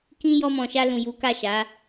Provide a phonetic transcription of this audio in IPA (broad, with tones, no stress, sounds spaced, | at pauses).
k ĩ˦ j ɔ˧ m ɔ̃˨ ʃ a˧ l ũ˨ j u˨˦ k a˦˨ ʃ a˨˦